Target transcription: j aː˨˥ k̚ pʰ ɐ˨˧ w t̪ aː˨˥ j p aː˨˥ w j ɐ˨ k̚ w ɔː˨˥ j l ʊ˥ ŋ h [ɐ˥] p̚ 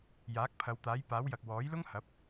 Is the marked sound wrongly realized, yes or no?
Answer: yes